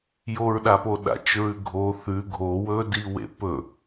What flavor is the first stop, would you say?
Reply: implosive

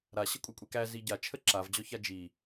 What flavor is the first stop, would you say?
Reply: ejective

